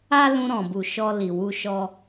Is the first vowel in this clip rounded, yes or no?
no